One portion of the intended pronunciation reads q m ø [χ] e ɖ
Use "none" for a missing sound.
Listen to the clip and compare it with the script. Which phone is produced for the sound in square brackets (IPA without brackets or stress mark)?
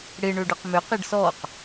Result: q